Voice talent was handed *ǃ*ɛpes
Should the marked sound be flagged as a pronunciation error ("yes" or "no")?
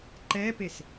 no